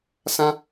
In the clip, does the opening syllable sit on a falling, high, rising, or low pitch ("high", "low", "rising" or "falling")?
high